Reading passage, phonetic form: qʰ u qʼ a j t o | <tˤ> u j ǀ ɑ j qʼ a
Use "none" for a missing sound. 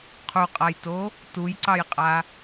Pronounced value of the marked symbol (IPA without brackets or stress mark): t